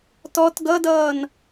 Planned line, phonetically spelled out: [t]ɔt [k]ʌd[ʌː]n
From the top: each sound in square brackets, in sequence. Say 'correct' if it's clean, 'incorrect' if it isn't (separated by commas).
correct, incorrect, correct